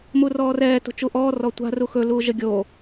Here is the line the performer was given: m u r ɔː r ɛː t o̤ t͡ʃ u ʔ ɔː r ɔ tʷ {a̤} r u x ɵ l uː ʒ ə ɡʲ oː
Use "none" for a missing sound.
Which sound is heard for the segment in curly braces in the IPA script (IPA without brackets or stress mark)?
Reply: a̤